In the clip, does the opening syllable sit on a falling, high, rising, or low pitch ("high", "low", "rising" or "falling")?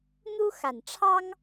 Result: high